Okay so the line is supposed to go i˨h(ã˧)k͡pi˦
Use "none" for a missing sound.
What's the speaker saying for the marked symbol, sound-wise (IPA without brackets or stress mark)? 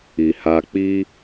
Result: a˧